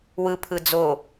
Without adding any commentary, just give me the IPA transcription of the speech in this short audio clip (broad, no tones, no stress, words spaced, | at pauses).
wɯpʰɯ d͡zo